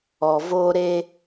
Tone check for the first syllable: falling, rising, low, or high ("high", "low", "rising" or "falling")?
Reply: low